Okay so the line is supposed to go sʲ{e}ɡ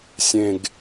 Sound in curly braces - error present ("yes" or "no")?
yes